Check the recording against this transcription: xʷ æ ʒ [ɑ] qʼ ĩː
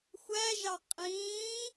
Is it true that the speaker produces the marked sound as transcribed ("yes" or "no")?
yes